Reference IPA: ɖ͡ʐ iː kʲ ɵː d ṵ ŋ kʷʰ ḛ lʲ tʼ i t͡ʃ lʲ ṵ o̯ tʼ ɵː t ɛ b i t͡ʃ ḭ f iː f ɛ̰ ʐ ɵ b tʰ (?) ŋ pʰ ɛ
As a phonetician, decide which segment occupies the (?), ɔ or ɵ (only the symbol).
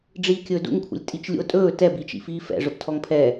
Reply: ɔ